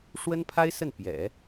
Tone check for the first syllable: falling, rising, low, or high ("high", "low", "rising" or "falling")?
high